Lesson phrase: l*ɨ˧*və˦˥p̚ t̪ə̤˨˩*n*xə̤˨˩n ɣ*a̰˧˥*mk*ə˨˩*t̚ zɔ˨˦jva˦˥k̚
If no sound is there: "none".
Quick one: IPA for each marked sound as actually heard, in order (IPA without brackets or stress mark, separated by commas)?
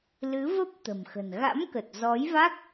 ɨ˨˦, m, a̰˧˥, ə˨˩